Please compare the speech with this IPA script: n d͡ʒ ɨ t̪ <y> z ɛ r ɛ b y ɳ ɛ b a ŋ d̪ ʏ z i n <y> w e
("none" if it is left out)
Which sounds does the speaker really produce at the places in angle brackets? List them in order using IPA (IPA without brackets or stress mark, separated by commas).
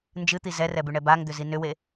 i, ʏ